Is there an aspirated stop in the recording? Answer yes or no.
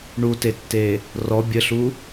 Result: no